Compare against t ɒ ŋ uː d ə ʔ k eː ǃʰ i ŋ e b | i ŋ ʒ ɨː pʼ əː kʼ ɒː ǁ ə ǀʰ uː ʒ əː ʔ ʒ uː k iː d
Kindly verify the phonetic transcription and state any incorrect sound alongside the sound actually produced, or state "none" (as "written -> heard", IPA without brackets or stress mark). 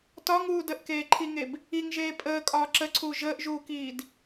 ɨː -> eː